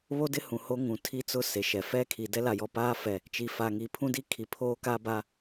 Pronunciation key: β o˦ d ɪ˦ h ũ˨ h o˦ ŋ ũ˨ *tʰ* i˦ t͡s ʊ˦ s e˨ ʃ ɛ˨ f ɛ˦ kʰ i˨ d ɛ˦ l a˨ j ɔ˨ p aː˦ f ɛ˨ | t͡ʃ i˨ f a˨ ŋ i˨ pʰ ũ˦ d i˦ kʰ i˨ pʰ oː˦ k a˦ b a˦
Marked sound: correct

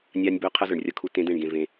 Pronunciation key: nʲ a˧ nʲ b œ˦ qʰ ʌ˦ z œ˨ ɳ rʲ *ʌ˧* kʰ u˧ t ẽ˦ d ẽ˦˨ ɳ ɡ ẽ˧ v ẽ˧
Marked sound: correct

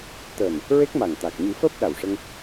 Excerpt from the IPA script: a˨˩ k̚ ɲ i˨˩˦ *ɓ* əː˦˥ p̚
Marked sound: incorrect: f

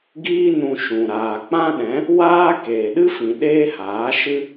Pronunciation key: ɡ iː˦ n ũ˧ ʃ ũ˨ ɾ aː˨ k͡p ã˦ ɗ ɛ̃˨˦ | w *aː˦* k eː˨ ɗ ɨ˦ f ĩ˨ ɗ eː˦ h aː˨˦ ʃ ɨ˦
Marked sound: correct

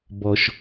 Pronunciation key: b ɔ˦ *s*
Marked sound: incorrect: ʃ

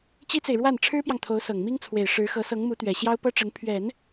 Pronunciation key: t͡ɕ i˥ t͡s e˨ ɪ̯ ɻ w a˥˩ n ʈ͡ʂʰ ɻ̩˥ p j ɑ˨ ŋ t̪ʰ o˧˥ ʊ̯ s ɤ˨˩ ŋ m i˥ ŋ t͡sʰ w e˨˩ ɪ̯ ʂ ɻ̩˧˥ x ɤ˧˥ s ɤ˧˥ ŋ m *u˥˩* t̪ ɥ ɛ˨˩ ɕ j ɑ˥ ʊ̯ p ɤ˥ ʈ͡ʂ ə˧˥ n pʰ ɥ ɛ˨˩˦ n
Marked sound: incorrect: u˧˥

